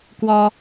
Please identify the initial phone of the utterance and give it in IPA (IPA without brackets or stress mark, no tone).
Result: k